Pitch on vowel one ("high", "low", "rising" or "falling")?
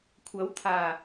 rising